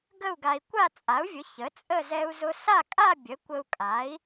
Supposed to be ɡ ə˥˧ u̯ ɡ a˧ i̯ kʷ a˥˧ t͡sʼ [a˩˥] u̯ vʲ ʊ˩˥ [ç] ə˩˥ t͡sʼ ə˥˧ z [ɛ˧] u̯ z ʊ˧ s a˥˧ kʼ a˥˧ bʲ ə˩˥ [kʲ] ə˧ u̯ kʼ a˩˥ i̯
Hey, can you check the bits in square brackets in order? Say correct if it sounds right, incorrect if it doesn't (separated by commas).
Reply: correct, correct, correct, incorrect